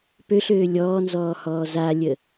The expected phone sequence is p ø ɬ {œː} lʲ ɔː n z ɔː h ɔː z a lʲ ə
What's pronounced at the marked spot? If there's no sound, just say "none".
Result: øː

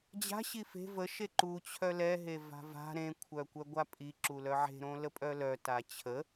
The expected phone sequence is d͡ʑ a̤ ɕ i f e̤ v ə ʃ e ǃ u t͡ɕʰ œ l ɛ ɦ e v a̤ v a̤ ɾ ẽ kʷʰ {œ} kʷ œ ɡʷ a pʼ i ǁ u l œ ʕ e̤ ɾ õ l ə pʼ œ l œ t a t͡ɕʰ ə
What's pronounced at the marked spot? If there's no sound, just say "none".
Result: œ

